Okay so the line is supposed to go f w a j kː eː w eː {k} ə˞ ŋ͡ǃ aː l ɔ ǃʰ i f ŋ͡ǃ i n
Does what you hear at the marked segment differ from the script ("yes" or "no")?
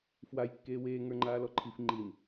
yes